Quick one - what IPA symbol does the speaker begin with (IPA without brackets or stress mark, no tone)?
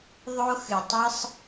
ðˤ